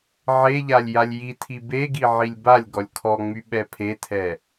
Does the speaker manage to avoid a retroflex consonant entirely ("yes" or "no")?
yes